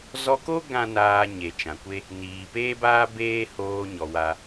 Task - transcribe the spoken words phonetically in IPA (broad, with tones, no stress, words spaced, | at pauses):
zɔ˧ko˦ ɡã˦naː˧ ɲe˨t͡ʃã˨kʷe˦ | niː˨peː˦baː˦ beː˦hoː˧ ɲɔ˨ wa˦